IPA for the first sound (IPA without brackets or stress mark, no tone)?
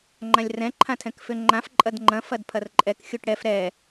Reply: ŋ͡ǃ